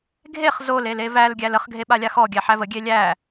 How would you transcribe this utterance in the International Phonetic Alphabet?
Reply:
ɡʱ e χ z o l e l e v æ l ɡʲ æ l ə χ ɡʱ e ɓ a lʲ a x ɔ ɡʲ æ ħ æ v ə ɡʲ e lʲ æ

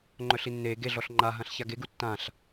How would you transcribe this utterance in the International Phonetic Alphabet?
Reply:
ŋ͡ǃ œ ɬ i nː eː ɡ e ɮ ɔ ɬ ŋ͡ǃ a ɦ ã ɬ ç a ɡ e ɡ u tː ã ɬ

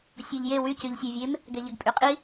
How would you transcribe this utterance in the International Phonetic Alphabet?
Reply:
sʲ o ʎ j e w y c y ʎ sʲ ɛ vʲ e m | ɡ ɛ ʎ ə ɡ pʼ y qʼ i

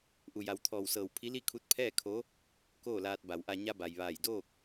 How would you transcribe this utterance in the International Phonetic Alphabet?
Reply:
ʔ u˩ j a˩˧ w t̪ʰ ɔː˧˩ w s ɤː˧˩ w pʰ i˧˥ l i˥˨ kʰ u˧˥ t̚ pʰ ɛː˥˨ kʰ o˧˥ | k oː˥˨ l aː˧ t̚ b a˩˧ w ʔ a˧ ɲ a˧ b a˩ j ʋ aː˧˩ j d oː˥˨ k̚

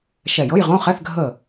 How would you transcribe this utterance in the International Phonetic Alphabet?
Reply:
ʃ ɛ˧˩ j ɤ˧˥˧ j ʁ õ˧˥˧ χ ɛ˧˥˧ θ ɡʱ ə˧˩

